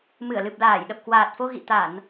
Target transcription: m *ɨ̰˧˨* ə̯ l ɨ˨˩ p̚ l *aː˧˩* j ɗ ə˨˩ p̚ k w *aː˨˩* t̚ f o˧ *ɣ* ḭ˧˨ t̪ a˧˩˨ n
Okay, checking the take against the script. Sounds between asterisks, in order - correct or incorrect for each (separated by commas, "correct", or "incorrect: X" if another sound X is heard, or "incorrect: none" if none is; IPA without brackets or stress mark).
incorrect: ɨ˧˩, correct, correct, correct